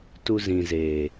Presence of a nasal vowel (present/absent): present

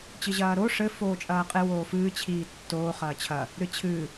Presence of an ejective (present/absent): present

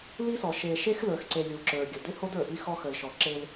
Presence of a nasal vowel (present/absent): absent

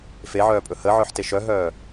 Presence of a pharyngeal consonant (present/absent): present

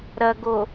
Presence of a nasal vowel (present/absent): absent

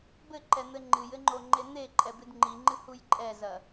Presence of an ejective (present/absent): present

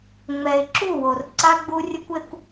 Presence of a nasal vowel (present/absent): absent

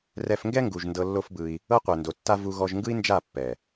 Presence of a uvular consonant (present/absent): present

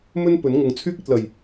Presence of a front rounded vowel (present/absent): present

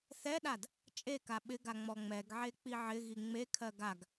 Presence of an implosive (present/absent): present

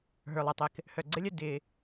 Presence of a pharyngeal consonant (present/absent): absent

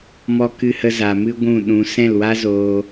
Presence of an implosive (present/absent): present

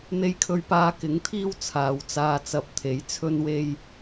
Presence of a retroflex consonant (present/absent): absent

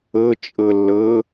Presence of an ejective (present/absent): present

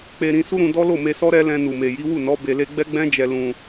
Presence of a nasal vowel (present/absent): present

